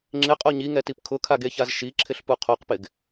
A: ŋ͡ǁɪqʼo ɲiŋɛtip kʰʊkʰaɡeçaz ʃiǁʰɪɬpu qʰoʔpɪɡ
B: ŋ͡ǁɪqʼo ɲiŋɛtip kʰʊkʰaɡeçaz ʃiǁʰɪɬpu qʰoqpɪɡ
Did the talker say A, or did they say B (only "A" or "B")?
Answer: B